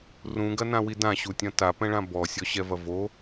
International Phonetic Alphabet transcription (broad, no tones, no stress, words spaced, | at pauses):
rũɡɐnãwi dãɕutʲɐ̃ tapɛ̃ɭã bɔsʲɔɕɛvɐ vo